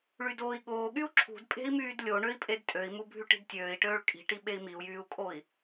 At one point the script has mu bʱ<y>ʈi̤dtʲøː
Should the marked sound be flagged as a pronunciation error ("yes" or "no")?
no